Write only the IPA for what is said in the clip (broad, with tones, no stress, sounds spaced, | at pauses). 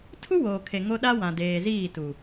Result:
tʰ u˦ w oː˨ kʰ e˨ ŋ o˦ ɗ a˦ w ã˨ d eː˨ z iː˦˨ t u˨